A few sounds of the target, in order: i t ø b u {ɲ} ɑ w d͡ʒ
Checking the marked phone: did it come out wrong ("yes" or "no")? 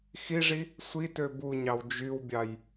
no